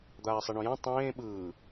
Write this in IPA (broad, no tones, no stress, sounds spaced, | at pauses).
d̪ aː sˤ i ɳ õ j ã tˤ ẽː ɓ ɯː